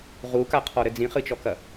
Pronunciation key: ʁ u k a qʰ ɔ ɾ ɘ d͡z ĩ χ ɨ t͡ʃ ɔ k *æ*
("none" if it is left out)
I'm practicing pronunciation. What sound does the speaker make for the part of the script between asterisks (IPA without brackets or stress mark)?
ɐ